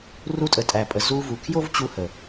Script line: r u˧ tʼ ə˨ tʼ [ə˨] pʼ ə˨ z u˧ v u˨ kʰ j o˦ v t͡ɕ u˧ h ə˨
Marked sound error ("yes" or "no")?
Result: yes